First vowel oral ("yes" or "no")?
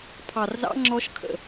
yes